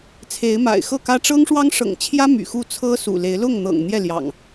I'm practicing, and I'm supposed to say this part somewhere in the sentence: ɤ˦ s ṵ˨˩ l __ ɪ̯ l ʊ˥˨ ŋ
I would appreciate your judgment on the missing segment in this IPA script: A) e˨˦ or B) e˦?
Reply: A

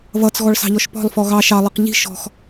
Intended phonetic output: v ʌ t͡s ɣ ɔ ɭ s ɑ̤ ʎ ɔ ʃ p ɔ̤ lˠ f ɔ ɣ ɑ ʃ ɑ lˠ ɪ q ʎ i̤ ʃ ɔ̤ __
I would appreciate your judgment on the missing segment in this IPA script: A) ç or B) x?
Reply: B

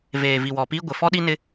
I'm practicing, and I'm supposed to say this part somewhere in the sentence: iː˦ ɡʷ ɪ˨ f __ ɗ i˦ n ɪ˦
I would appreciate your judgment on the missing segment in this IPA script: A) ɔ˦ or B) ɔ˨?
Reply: A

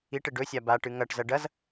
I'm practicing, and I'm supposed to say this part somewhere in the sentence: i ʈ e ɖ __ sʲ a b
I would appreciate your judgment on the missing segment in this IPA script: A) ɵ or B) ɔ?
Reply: A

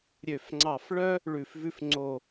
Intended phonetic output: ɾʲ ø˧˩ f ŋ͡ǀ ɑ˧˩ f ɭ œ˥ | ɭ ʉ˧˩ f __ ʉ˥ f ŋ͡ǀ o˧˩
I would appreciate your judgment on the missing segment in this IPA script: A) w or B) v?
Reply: B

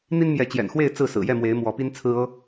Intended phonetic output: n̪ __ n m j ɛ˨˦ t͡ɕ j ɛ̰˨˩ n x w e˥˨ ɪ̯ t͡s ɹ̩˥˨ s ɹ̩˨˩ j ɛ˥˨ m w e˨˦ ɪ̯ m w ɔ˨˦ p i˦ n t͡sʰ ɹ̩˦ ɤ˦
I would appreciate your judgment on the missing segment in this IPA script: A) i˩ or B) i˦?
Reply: B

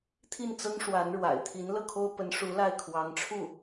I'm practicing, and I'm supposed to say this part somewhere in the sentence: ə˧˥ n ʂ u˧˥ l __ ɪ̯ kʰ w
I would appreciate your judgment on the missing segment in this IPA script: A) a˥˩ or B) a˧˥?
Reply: A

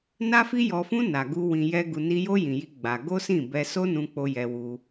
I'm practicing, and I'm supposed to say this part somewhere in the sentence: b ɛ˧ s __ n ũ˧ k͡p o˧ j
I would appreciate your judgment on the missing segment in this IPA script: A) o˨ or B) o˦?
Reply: B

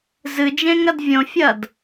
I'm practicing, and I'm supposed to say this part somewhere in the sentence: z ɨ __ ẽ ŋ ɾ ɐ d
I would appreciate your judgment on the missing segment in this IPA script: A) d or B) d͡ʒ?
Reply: B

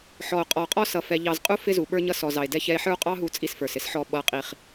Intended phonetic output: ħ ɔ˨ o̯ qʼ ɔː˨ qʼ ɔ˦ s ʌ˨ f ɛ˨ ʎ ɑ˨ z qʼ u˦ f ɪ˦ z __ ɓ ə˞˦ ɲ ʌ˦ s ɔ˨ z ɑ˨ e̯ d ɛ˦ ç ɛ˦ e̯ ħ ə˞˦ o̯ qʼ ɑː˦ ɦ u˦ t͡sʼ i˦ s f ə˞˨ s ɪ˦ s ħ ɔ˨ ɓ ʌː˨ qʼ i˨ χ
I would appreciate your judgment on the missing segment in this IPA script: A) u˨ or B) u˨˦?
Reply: A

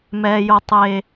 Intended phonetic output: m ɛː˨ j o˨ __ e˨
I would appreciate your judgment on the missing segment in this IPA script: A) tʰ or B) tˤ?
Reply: B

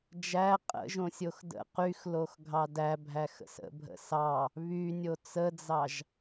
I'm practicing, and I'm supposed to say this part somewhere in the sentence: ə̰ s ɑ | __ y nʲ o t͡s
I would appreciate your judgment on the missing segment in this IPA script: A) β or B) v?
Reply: A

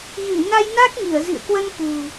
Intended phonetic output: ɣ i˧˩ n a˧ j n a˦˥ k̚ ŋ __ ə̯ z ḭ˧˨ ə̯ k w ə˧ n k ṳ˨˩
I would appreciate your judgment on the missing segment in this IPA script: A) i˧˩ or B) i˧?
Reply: A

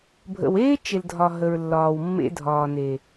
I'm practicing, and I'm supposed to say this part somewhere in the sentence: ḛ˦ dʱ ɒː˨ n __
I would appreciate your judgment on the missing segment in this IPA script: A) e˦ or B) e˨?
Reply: B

